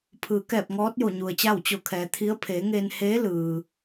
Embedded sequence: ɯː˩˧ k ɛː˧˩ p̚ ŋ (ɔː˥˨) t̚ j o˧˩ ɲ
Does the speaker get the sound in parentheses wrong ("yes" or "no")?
yes